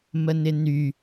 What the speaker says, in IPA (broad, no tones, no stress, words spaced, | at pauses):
mənɪny